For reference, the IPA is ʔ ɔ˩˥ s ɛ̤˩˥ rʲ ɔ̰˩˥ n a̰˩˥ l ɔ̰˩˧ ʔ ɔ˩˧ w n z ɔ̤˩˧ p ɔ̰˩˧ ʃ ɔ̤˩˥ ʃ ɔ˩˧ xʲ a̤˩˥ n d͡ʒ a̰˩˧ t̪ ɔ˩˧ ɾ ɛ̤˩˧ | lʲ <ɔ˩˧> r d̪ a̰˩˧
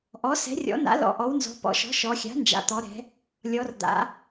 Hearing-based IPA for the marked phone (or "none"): ɔ˩˧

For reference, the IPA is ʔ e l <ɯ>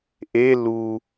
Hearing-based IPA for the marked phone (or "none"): u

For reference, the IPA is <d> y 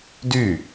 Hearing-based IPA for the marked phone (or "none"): d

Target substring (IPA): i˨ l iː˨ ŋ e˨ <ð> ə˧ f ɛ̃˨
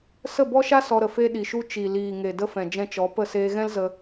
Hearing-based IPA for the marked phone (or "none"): d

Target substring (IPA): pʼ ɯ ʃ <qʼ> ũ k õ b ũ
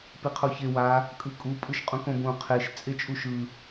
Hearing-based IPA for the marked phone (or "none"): qʼ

